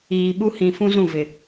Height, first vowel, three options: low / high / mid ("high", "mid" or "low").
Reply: high